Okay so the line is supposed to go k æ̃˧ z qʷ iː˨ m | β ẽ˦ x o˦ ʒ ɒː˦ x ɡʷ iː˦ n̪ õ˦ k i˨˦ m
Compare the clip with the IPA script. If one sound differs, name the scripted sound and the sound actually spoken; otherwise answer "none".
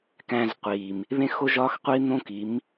ɡʷ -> qʷ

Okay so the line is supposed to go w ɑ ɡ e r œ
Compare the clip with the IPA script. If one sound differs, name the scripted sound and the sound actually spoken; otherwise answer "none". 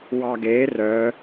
none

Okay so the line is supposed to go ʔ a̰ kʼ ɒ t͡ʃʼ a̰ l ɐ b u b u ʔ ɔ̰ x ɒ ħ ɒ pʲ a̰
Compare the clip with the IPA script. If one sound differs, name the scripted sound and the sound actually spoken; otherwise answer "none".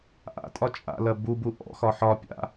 kʼ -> tʼ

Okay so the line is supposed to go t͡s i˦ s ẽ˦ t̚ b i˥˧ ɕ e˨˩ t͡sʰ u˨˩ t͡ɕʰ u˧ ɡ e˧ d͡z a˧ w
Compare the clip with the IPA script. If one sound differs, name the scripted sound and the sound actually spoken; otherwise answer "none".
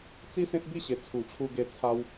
d͡z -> t͡sʰ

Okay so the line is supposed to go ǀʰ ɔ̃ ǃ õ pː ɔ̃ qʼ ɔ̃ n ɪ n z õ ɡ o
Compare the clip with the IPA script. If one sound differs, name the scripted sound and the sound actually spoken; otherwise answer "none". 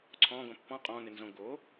ǃ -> ɡ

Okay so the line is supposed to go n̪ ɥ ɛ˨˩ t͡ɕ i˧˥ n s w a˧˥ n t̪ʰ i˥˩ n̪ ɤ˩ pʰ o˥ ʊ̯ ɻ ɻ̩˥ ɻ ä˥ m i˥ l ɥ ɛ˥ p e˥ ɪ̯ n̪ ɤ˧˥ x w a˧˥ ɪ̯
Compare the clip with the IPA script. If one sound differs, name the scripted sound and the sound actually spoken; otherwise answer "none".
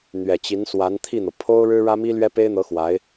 none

